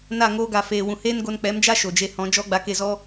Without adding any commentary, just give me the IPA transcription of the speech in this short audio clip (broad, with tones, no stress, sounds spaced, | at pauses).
n a˦˨ ŋ oː˧ ɡ a˨ f eː˨ w ũ˨ h eː˦ n ɡ o˧ n k͡p ɛ˨˦ m d͡ʒ a˦ ʃ o˨ d͡ʒ e˧ h ɔ̃˨˦ d͡ʒ ɔ˦ ɡ͡b a˧ k e˦˨ z ɔ˦